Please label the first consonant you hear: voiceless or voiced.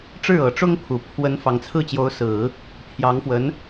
voiceless